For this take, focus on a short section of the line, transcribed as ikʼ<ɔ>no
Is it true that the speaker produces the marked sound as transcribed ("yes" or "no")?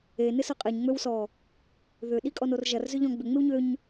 yes